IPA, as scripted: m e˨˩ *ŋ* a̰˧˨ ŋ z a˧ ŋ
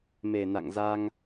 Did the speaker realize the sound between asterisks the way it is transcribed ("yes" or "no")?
no